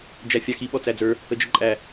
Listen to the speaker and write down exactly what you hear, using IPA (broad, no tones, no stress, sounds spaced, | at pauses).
d͡ʒ æ fʲ ɑ x i ɓ ɔ t͡s æ d͡z ə˞ | ə d͡ʒ ə ǃʼ æ